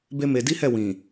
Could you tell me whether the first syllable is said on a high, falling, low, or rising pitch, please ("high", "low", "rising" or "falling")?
high